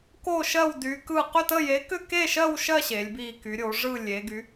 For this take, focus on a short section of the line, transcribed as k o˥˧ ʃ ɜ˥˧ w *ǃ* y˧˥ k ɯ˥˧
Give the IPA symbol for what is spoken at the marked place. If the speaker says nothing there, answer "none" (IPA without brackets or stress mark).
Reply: d